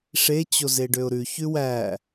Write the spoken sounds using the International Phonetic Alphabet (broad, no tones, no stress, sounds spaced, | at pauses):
ʂ e t͡ɕ o z e ɖ ø ʊ̯ ɾ ʉ ç ʉ w æ